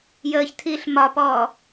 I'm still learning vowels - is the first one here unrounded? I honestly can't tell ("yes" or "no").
yes